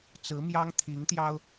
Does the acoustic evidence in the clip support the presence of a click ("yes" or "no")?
no